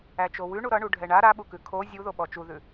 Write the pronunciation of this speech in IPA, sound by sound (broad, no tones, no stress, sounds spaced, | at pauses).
æ t͡ʃ o w ʉ ɳ u ɾ ʌ ɳ u ɖʱ ɛ ɳ a ɾ a ɓ u k ʉ kʰ o zʲ u ð o ɓ ɔ t͡ʃ u ð ʉ